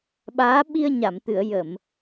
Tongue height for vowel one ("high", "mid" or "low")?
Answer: low